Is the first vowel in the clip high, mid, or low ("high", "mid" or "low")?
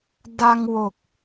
low